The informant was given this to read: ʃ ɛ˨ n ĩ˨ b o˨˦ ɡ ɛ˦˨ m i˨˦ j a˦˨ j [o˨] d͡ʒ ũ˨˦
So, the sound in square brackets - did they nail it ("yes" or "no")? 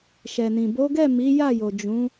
yes